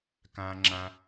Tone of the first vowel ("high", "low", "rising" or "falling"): high